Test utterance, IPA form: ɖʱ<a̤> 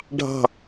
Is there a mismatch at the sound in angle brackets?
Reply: yes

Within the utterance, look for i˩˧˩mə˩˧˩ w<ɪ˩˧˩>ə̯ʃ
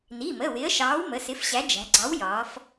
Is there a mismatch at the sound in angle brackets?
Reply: yes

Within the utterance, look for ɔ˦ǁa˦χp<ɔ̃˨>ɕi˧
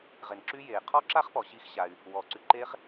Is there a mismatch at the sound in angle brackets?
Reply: yes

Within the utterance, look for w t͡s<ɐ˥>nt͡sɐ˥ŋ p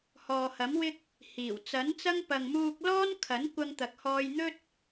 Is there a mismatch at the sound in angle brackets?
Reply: yes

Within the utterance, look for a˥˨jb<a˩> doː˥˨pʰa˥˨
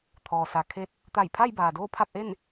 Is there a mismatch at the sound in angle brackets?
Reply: yes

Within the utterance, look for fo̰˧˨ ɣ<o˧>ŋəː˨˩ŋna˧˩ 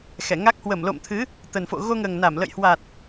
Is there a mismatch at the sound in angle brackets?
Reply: no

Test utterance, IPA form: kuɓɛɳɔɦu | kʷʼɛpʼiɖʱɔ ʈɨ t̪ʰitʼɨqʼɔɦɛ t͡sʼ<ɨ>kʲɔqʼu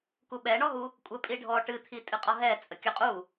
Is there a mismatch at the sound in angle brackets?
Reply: yes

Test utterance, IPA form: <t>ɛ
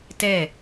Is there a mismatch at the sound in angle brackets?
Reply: no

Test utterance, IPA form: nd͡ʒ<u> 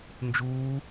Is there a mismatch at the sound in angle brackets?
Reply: yes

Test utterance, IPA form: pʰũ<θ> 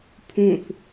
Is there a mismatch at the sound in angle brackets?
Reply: no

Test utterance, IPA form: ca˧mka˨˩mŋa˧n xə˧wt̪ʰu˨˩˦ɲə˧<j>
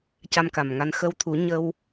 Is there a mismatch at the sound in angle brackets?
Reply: yes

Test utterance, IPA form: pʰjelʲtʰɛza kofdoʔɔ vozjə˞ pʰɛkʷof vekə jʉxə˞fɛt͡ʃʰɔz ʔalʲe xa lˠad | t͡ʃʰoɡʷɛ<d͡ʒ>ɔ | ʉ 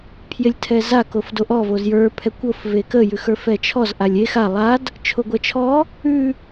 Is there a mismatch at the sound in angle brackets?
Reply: yes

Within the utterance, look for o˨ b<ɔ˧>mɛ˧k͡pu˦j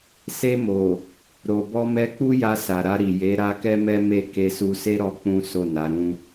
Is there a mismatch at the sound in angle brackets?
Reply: no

